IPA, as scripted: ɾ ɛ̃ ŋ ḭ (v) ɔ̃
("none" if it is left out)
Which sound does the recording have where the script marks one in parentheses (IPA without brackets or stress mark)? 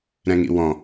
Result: w